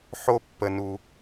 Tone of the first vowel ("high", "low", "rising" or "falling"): high